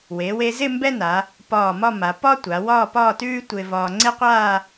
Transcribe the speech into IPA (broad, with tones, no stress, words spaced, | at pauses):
we˩˧we˧zɪ˥˧ mbɛ˥na˩˧ | pɒː˧˩mɒ˥˧ma˩˧ pɒ˥tʷa˩˧wɒː˥˧ pɒː˥˧tʉː˥ tʷɪː˧vɒː˧ ŋ͡ǀe˥qʷaː˥˧